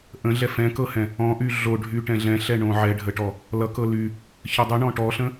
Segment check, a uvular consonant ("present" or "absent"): absent